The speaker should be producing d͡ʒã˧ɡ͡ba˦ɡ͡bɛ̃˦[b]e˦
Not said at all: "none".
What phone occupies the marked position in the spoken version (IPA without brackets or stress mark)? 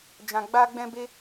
b